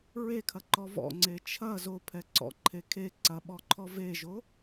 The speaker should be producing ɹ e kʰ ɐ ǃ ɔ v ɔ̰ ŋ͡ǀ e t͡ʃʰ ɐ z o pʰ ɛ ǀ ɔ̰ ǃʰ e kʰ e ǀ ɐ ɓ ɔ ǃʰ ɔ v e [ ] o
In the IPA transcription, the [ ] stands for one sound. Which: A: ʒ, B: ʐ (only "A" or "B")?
A